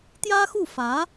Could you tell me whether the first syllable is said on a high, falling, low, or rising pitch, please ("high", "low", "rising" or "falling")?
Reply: high